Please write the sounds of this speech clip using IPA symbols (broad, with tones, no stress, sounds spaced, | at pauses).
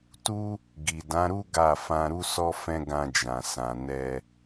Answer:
t u˦ | ɡ i˨ d ã˨˦ ɾ u˦ ɡ a˦˨ f ã˧ ɾ u˦ s ɔ˦ f ɛ̃˦ ɡ ã˧ d͡ʒ ã˨ s ã˨ n ɛ˧